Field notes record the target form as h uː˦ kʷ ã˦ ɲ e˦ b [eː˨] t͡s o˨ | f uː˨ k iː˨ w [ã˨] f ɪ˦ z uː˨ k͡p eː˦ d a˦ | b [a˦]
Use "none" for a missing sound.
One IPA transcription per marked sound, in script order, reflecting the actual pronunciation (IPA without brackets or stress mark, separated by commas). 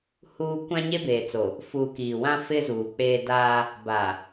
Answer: eː˨, ã˦, a˨